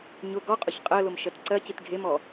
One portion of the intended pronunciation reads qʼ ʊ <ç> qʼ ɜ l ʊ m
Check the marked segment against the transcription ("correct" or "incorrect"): correct